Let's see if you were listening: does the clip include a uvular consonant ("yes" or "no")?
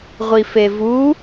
yes